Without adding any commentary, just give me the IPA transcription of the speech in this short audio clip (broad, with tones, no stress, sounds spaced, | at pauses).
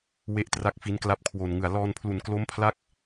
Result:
w e˥˩ ʔ t r a˥˩ k̚ f i˦˥ n k l a˦˥ p̚ kʰ w o˨˩ n ŋ ɯ˨˩ a̯ l ɔː˧ n pʰ l u˨˩ n k l o˦˥ m pʰ l a˦˥ k̚